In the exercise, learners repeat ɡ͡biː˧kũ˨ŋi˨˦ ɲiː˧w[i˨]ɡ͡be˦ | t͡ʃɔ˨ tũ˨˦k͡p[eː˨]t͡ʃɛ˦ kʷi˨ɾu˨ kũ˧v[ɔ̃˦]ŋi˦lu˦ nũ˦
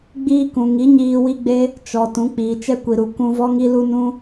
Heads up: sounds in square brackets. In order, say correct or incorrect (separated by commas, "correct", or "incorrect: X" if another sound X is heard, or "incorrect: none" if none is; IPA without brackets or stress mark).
incorrect: i˦, incorrect: iː˨, incorrect: ɔ˦